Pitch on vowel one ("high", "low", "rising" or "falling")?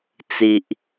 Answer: low